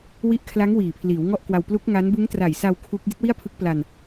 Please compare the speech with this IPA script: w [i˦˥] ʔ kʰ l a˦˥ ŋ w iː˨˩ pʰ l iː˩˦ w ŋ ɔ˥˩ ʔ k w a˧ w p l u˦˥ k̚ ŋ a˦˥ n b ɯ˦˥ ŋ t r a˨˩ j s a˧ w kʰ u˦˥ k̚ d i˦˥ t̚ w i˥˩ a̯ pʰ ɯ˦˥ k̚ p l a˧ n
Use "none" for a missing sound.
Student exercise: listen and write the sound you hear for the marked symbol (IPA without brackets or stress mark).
i˦˥